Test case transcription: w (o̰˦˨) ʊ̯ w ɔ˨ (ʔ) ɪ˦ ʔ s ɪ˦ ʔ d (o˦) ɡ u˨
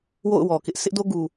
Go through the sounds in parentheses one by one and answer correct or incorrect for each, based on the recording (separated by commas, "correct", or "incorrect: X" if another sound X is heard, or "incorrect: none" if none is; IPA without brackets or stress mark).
correct, incorrect: k, correct